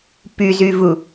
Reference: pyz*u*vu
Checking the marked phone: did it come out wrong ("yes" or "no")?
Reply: yes